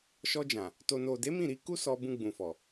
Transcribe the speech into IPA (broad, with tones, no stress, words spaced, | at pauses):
ʃɔ˧ d͡ʒã˨ | to˨no˨de˨˦ mĩ˦˨ɾi˧ ku˦ sɔ˧bũ˧ɡ͡bũ˨fɔ˨